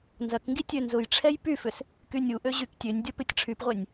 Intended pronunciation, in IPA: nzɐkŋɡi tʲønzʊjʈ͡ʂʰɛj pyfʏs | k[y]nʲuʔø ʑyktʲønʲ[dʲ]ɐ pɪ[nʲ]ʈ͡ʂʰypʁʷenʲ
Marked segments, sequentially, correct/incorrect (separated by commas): correct, correct, incorrect